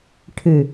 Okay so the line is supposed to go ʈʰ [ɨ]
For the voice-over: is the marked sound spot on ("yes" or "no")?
yes